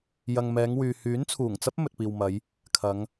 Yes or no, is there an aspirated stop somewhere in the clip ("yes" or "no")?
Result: yes